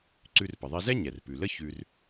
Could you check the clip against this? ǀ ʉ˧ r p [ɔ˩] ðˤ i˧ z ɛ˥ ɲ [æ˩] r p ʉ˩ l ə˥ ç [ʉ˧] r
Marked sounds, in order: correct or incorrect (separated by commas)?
incorrect, incorrect, correct